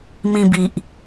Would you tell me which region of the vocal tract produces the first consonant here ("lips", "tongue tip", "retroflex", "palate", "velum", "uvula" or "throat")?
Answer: lips